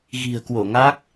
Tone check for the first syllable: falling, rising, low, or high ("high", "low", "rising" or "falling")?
low